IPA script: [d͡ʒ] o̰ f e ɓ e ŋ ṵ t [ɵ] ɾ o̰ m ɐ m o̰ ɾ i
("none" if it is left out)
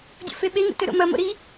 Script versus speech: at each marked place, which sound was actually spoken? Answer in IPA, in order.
dʲ, ɵ

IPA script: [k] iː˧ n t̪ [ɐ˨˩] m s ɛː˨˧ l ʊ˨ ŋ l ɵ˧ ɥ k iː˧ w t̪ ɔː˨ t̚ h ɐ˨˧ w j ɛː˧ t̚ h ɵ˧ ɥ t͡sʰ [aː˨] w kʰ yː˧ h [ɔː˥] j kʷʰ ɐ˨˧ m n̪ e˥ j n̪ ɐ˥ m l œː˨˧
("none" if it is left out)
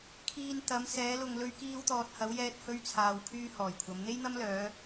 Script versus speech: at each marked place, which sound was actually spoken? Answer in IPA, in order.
kʰ, ɐ˨˧, aː˨, ɔː˨˩

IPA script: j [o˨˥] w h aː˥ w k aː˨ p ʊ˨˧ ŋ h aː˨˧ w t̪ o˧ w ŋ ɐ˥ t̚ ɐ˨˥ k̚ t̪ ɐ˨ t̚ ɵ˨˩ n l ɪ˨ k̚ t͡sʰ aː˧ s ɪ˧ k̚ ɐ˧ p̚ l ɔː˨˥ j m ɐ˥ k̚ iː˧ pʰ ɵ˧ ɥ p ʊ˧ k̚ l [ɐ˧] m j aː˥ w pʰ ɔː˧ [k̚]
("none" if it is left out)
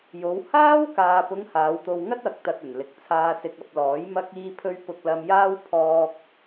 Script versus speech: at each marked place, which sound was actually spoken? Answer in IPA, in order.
o˨˧, ɐ˧, k̚

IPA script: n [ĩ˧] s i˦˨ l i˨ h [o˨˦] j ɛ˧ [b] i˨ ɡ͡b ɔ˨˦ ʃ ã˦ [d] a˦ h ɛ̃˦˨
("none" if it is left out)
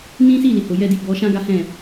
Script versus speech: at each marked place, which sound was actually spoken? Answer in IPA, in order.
ĩ˦, o˨, d, ɡ

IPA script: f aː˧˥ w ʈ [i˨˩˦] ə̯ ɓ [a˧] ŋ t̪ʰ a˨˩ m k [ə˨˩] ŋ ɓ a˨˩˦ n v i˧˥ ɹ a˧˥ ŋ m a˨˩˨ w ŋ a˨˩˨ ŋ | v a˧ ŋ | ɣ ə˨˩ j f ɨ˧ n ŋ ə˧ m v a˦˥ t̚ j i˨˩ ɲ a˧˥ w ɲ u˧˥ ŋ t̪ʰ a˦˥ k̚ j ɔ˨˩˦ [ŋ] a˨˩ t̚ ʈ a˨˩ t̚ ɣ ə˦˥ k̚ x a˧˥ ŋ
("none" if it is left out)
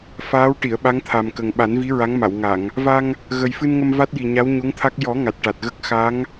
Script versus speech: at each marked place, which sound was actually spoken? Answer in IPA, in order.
i˨˩˨, a˧˥, ə˨˩, ŋ

